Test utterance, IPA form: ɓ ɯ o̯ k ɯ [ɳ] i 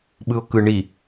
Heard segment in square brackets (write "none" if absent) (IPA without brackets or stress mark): ɳ